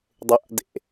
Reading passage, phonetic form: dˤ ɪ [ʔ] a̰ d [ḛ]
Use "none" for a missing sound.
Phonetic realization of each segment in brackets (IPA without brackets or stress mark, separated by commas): ʔ, ḛ